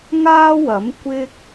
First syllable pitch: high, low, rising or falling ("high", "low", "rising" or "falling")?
high